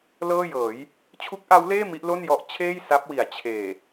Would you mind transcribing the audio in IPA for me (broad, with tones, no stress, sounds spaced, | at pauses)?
l ɤː˥˩ j ɤː˩˦ j | t͡ɕʰ u˦˥ k̚ ʔ a˦˥ w l eː˥˩ m i˦˥ ʔ l o˥˩ n j ɔ˦˥ ʔ t͡ɕʰ eː˥˩ j s a˦˥ p̚ w i˩˦ a̯ t͡ɕʰ eː˨˩